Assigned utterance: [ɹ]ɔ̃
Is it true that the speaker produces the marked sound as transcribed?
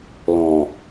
no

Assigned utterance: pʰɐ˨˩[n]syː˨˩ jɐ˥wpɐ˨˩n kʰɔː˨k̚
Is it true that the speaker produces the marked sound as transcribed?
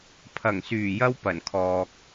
no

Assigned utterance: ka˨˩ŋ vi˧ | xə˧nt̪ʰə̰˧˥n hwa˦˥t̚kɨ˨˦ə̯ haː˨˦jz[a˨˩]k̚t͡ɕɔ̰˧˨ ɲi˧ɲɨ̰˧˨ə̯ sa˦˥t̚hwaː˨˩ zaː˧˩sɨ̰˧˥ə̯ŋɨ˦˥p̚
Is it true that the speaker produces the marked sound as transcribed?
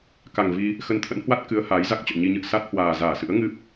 no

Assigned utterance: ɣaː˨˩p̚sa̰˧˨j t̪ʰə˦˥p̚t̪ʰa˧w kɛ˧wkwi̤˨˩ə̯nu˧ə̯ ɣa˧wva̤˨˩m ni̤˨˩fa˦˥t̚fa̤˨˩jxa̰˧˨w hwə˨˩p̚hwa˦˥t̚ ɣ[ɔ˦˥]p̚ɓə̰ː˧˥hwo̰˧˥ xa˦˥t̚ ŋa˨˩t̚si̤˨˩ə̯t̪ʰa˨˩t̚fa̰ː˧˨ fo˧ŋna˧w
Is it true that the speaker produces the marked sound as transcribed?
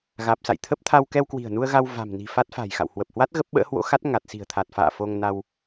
no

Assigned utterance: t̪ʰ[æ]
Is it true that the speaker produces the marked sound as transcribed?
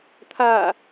no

